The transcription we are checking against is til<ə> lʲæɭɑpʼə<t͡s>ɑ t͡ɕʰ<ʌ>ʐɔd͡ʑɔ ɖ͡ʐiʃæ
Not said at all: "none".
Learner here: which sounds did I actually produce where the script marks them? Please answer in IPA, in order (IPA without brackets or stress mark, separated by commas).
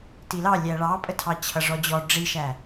ɑ, tʰ, ʌ